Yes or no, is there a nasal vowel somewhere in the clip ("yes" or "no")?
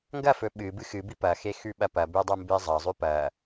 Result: no